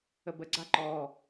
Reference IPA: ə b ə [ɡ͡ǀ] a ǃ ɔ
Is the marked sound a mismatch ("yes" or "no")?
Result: no